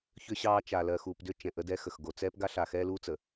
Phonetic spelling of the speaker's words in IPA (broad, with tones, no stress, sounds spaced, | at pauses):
ç ʏ˦ ɕ ɑː˦ t͡ʃ a˨ l ɜ˨ x uː˨ p d ʏ˦ t͡ʃ ɛ̃˨ ʔ ə˦ d ɛ˦ x ə˨ x ɡ o˨ t͡s ɛː˦ p ɡ a˦ ɬ a˨ x ɛː˦ l uː˦ t͡s ə˨